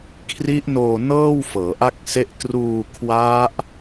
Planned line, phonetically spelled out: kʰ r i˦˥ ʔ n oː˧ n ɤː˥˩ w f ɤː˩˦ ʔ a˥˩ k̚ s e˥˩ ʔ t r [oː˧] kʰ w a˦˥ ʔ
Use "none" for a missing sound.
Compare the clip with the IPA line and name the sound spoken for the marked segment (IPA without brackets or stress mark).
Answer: uː˧